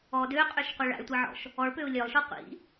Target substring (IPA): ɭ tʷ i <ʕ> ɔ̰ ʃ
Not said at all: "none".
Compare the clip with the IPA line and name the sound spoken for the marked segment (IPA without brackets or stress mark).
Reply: ʕ